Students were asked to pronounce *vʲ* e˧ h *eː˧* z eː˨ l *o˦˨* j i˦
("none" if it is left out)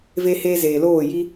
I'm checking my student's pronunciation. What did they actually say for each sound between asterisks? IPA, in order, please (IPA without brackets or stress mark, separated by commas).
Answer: v, eː˧, oː˦˨